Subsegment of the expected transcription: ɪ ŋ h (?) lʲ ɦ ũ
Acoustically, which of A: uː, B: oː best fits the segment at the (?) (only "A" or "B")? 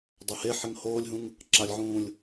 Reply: B